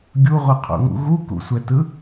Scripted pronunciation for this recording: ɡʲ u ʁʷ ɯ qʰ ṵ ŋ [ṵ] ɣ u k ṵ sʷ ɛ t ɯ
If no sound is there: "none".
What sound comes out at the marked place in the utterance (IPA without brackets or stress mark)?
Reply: ṵ